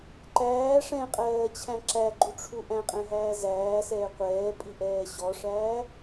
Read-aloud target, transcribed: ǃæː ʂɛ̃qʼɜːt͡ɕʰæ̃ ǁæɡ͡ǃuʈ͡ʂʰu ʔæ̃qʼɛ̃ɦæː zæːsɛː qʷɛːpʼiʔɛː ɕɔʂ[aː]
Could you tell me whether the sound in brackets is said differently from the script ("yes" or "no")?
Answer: yes